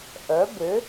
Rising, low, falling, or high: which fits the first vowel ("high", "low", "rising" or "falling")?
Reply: rising